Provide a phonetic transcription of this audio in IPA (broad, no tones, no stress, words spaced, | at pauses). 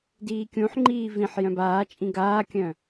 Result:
diːkʲũħŋ͡ǃiː vĩħ jœ̃baːt͡ʃʼĩ ɡaːkʲœ̃